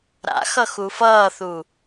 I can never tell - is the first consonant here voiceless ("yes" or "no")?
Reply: no